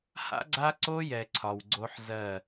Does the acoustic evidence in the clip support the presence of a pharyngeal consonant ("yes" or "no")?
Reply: yes